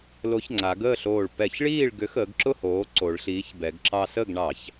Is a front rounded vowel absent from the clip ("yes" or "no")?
no